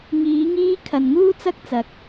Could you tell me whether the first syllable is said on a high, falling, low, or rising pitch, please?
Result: rising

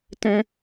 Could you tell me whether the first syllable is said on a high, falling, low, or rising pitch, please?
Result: high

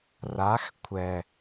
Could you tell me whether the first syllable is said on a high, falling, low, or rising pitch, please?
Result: rising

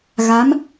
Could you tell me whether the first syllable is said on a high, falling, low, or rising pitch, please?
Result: rising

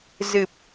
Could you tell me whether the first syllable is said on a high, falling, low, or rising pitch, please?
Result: low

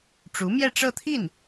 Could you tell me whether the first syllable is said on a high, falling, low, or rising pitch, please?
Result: rising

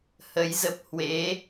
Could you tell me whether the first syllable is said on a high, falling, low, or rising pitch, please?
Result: rising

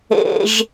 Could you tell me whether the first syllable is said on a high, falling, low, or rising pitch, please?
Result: low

